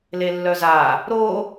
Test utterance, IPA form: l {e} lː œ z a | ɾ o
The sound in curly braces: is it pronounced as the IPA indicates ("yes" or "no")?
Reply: yes